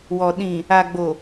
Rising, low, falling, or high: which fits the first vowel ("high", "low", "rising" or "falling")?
low